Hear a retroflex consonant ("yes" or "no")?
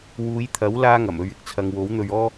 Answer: no